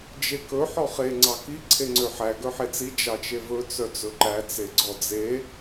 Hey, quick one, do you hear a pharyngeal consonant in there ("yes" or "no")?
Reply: yes